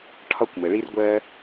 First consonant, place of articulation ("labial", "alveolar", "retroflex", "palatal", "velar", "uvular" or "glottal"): retroflex